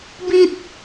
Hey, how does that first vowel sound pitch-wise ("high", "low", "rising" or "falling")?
high